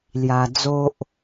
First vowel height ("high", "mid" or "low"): low